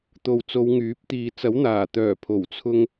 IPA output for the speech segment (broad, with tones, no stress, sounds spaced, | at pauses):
t̪ o˨ w t͡s o˨˧ w ŋ yː˨˥ p̚ t̪ iː˨ t͡s ɐ˨˥ w n̪ aː˨˩ t̪ œː˨˩ pʰ o˨˩ w t͡sʰ ʊ˧ ŋ